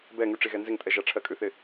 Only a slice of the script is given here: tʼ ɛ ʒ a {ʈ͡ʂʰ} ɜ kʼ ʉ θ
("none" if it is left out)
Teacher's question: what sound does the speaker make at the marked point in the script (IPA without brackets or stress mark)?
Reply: ʈ͡ʂʰ